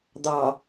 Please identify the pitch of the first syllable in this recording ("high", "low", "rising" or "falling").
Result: low